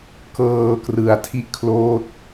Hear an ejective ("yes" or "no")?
no